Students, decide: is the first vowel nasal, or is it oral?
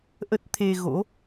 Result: oral